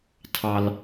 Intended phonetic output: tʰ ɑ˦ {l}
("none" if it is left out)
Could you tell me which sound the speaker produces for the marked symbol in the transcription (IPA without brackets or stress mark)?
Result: l